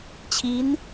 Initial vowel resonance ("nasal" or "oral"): oral